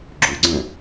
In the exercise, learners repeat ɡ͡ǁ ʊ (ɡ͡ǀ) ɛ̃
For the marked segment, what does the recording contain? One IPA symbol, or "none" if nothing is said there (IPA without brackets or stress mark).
ɡ͡ǀ